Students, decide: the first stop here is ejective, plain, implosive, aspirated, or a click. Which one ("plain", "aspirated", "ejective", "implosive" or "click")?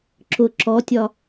click